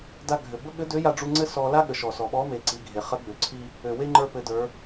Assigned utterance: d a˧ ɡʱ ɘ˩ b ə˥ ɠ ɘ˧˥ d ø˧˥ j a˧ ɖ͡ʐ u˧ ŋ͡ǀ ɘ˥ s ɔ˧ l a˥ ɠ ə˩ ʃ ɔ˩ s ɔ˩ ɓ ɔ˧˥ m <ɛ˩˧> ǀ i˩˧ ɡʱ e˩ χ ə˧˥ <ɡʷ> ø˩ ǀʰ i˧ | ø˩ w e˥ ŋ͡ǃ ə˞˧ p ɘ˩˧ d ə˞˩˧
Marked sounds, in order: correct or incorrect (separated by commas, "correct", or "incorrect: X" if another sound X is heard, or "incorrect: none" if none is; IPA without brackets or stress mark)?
incorrect: e˩˧, incorrect: ɡ͡b